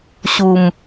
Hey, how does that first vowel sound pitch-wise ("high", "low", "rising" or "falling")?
low